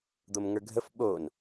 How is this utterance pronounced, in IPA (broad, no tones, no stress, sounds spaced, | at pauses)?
d̪ o m ŋ ə˞ ɡʱ ə f ɓ o n